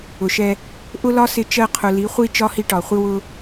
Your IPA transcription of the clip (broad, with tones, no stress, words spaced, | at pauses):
ʊ˨ʃɛ˧ | ʔʊ˦lɒ˦sɪ˧ t͡ʃɜ˧qʰʊ˨ li˨˦χʷi˦ t͡ʃɒ˦hi˧ʈɒ˨χʷɪ˦ wʊ˧